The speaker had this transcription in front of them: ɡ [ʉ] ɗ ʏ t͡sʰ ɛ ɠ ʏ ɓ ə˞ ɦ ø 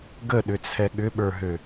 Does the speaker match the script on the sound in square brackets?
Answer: no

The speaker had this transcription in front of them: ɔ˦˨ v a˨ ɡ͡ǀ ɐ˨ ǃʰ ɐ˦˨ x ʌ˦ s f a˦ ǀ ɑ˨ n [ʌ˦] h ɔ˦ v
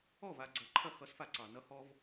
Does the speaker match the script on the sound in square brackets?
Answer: yes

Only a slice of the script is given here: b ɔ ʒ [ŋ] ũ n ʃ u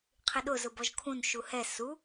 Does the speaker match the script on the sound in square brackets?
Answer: no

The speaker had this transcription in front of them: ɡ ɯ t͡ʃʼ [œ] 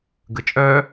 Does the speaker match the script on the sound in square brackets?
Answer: yes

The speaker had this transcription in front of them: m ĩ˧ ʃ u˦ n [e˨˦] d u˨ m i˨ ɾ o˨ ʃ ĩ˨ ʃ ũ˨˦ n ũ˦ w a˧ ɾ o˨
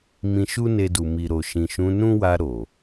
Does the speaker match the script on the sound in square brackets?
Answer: no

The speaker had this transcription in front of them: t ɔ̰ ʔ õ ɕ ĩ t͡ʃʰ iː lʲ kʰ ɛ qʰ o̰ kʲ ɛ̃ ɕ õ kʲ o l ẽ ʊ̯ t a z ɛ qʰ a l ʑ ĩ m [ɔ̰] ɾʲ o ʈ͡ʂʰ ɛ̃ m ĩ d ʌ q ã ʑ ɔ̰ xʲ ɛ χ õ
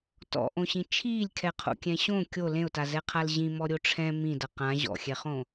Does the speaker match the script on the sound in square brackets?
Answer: no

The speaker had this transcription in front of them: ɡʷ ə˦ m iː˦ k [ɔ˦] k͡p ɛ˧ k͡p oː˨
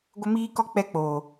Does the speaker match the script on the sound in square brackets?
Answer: yes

